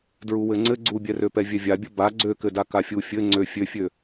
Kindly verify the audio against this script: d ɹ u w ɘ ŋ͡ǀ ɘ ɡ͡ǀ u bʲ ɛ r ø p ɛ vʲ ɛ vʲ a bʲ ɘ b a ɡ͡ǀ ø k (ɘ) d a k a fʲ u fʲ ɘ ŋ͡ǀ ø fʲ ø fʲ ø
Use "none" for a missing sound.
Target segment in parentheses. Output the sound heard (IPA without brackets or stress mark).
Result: ɘ